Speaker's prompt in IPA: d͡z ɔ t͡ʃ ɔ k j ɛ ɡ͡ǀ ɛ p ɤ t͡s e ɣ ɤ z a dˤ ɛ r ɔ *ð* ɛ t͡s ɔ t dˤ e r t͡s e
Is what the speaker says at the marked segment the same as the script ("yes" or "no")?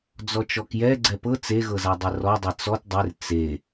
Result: no